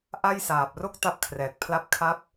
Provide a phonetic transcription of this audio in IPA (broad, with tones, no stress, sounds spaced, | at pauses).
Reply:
ʔ a˥˩ j s aː˨˩ p̚ r o˥˩ k̚ t a˥˩ p̚ kʰ r ɛː˨˩ k̚ pʰ l a˥˩ p̚ kʰ a˥˩ p̚